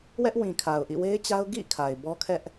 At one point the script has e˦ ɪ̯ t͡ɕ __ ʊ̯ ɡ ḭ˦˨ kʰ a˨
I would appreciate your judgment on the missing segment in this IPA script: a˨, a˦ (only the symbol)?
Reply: a˦